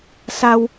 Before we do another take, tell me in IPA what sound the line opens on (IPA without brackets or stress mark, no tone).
s